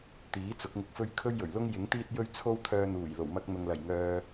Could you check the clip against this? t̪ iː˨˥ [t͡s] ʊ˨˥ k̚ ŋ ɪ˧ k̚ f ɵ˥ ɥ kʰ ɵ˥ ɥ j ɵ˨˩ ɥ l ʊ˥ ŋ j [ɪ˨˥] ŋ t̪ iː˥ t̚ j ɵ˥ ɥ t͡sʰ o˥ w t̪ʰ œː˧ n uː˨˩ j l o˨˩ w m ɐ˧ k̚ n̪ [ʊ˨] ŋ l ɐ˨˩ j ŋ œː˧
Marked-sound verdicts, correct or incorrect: correct, correct, correct

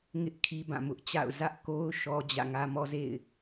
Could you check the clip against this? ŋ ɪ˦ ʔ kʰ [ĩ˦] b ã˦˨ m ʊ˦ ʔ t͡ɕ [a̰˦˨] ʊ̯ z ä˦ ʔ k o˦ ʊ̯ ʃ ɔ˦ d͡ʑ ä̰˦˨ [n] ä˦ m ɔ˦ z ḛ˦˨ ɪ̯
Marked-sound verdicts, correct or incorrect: incorrect: i˦, correct, incorrect: ŋ

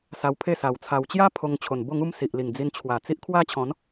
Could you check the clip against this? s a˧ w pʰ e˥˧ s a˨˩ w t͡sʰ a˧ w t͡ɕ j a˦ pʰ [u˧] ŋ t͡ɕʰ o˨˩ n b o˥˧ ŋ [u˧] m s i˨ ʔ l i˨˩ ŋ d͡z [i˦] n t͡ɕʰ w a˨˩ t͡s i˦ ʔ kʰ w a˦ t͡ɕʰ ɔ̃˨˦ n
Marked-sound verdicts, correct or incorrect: incorrect: o˧, incorrect: u˦, incorrect: i˧

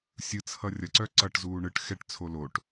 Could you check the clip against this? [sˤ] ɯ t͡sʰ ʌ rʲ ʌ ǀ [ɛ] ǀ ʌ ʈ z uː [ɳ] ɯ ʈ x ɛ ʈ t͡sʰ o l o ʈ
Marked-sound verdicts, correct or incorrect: incorrect: sʲ, incorrect: œ, correct

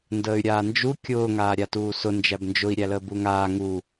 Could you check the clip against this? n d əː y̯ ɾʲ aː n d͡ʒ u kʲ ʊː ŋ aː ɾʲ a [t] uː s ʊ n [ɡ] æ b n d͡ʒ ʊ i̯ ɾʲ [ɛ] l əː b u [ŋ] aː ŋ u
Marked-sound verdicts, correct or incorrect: correct, incorrect: d͡ʒ, incorrect: æ, correct

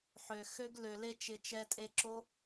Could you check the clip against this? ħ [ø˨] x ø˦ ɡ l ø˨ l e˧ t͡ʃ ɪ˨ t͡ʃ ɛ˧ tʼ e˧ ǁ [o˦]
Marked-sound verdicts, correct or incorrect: correct, correct

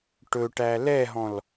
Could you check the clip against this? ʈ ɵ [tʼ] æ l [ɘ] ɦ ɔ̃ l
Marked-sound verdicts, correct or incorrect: incorrect: ʈ, incorrect: ɛ

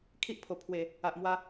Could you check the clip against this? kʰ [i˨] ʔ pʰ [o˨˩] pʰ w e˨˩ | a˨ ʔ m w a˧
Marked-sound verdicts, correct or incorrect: incorrect: i˦, correct

